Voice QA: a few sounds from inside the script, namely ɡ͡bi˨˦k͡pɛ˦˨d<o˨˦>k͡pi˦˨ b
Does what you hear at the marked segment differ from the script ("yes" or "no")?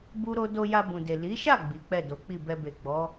no